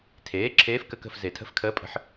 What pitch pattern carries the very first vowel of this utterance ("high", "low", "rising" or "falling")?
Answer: rising